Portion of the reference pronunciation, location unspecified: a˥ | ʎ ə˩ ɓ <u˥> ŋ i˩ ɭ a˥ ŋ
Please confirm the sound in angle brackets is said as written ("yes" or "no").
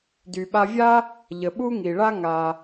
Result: yes